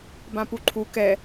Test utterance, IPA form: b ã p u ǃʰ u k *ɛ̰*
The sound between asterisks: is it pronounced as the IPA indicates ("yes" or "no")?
no